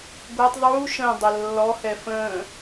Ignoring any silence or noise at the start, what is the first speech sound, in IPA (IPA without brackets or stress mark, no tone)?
ɡʷ